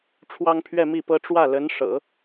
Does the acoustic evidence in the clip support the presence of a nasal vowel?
no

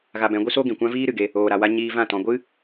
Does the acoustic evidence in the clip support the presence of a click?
no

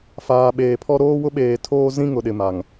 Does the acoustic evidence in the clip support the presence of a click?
no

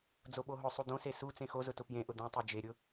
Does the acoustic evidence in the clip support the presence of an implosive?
yes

